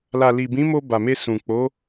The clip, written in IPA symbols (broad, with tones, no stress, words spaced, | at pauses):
la˨li˨bĩ˨˦mo˧ ba˨me˧ sũ˨ k͡po˨˦